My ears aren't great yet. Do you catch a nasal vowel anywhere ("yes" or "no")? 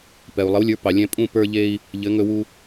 yes